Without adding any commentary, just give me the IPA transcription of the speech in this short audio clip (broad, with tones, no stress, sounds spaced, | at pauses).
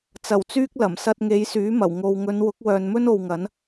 t͡s ɐ˨˩ w t͡s yː˧ k̚ l ɐ˨˩ m s ɐ˧ t̚ ŋ e˨˧ j s yː˨˥ m ɐ˨˩ w ŋ o˨ w ŋ ɵ˨˧ n w ʊ˨˥ k̚ w œː˨ n m ɵ˥ n o˨ w ŋ ɐ˨˥ n